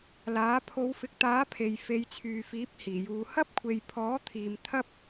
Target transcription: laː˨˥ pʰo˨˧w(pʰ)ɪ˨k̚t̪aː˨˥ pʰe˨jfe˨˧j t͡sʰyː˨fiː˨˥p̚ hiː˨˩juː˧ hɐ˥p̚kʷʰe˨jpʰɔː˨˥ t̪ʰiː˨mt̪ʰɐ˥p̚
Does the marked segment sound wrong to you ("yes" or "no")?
yes